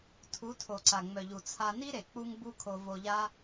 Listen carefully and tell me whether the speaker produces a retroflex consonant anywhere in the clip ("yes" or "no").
no